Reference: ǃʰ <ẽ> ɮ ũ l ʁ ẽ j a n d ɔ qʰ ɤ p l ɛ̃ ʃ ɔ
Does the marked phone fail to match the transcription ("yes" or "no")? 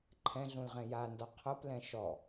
yes